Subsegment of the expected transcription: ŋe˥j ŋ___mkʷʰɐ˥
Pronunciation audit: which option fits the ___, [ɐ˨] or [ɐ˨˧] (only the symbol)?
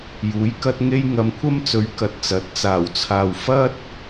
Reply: ɐ˨˧